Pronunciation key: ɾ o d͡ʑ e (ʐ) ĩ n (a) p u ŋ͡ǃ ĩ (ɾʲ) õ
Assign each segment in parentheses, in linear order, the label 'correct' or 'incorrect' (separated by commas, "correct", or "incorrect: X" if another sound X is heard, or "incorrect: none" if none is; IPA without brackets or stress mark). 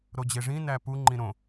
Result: correct, incorrect: æ, incorrect: ɾ